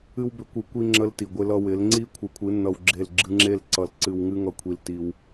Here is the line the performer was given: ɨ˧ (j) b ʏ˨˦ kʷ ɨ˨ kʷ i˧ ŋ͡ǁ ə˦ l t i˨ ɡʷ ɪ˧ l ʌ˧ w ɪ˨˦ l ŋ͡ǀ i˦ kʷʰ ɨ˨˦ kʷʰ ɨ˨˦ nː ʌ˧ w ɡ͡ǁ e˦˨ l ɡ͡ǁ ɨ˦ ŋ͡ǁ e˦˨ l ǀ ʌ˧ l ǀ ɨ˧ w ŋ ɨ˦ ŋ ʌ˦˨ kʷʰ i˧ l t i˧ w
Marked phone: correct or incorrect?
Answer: incorrect